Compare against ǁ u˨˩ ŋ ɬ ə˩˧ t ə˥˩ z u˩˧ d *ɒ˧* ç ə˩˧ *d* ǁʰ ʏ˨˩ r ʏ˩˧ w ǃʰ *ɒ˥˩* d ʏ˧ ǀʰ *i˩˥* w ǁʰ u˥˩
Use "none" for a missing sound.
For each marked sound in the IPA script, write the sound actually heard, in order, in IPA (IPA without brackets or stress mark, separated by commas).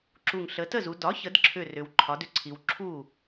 ɒ˩˥, d, ɒ˩˥, i˩˧